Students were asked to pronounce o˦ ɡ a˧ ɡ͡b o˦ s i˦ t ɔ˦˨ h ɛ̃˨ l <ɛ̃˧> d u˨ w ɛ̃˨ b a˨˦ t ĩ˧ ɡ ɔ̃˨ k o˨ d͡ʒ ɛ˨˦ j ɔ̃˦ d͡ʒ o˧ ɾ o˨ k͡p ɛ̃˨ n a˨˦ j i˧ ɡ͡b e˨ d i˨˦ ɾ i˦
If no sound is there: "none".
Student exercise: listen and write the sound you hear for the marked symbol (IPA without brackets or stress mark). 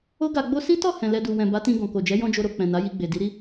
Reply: ɛ˧